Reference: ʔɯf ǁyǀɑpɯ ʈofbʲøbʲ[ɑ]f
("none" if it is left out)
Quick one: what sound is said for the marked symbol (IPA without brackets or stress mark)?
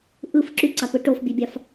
ɑ